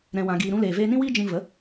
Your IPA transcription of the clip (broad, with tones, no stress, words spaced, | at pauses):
ɾɛ̃˧wã˧ɡiː˧ ɾũ˧leː˨ veː˧nĩ˦wiː˦ d͡ʒĩ˧və˨˦